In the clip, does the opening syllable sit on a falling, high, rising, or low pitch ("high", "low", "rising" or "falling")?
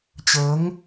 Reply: rising